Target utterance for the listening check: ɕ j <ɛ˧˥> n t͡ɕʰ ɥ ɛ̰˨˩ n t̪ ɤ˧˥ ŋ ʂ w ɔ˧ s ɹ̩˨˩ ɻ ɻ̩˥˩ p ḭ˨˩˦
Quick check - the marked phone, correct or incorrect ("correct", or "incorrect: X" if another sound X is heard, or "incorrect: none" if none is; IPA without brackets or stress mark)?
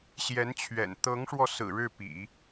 correct